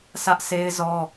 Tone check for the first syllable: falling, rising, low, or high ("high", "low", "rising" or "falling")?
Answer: high